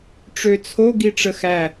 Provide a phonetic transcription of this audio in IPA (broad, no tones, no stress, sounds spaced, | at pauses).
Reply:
ʈ͡ʂ ø t͡sʰ o ɡ i ʈ͡ʂ ə x æ